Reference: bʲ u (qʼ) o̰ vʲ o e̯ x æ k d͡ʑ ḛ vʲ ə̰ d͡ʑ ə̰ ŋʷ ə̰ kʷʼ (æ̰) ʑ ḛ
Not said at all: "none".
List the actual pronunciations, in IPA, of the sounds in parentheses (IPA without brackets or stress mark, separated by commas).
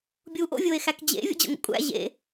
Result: ʔ, æ̰